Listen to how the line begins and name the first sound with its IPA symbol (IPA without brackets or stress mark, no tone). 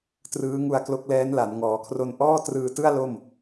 t